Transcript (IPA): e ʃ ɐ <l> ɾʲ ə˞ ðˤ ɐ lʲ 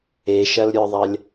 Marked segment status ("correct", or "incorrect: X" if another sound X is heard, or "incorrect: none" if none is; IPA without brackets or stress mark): correct